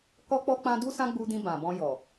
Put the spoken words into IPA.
k ɔ˦ k͡p ɔ˦ k͡p ã˦ d u˦ s ã˦ ɡ͡b u˧ d ĩ˧ b ã˨ b ɔ̃˧ j ɔ˨

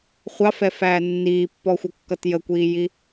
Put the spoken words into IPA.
χʷ ɑ f ɛ f æː nː iː pː ɔ xʷ ʌ kː ʌ t j ə kʷ iː j i

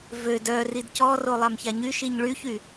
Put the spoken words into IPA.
v ø d œ r i d c ɔ r o lˠ a m ç a ɲ y ʃ i ɲ ɭ y ç y

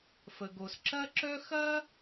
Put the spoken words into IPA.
f ə˩ ɡ o˩ s ǁ ɐ˥ ǁ œ˥ x ɐ˥

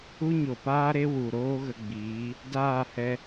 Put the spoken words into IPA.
u˦ ɲ o˨ p aː˦ ɾ e˦ w u˨ ɾ oː˦ ɣ ə˧ ɡ͡b iː˨˦ | d aː˦˨ h ɛ˧

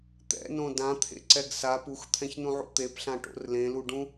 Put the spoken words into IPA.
t̪ ɛ̰ n õ d ã t̪ʰ ḛ ǀ ɛ ɡ s a p u x t̪ʰ ɛ̃ ç n ũ ʕ ṵ t̪ e p ɬ ã ʈ o̰ r l ẽ l u ɖ ũ

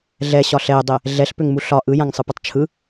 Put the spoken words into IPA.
ɮ ɛ ɕ ɒ ɬ ɛ dˤ ɛ | ɮ ɛ ɬ p ʏ ŋ m u ɬ ɒ ʔ ɯ j ã ŋ sˤ ɯ p ɛ tˤ t͡ʃʰ ɯ

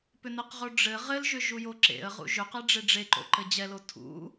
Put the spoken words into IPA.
p ʏ n ɘ q ʁ o ɖ͡ʐ ɘ ʁ ɘ l ʒ ʏ ʒ u j o ǁ ḛ ə̯ ʁ ṵ ʒ ʏ q ɛ ɖ͡ʐ e ɖ͡ʐ e ǃ o̰ ǃ ɘ d͡ʑ ɛ l o tʰ ṵ

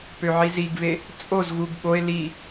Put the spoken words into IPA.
p ø ʕ i z i ɡ β e | t͡sʼ o z ɣ u ɡ ɓ o e̯ l i

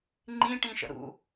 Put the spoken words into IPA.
ŋ͡ǃ ĩ ʈ ĩ ʃ ə̰ ɾ ṵ

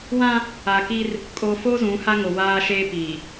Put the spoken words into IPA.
w ã˦ | a˨ k i˦ r | kʼ o˨ f o˦ z ũ˨˦ h a˦ ŋ o˨ w aː˦ ʃ eː˦ p iː˨

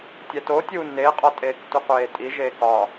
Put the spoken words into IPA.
tʲ æ t o tʲ uː n e qʼ ɒ tʼ eː k t u qʷ eː tʼ i ʒ eː k ɒ

